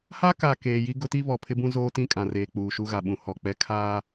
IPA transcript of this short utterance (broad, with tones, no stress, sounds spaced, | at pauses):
h a˦ k a˨ k eː˨ j i˦ ɡ ʊ˦ t i˦ β ɔ˨ pʰ ɪ˦ b ũ˦ z oː˦ t ĩ˦˨ kʼ ã˨ r eː˨ k͡p uː˨ ʃ u˦ ɣ a˨ ɓ ũ˨ h ɔ˨ k͡p ɛ˦ kʰ aː˦